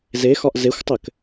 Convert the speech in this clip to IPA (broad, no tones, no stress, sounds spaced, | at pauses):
z e x ɒ ʔ z e xʷ tˤ ɘ k